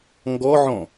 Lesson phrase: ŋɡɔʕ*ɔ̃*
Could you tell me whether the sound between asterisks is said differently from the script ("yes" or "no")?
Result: no